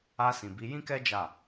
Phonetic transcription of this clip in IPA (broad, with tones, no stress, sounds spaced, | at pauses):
a˧ s ĩ˨ b i˨˦ j ĩ˦ k ɛ˦ d͡ʒ a˦˨